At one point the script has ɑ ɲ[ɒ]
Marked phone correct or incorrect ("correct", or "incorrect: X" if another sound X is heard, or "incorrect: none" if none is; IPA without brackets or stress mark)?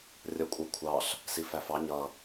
incorrect: ʌ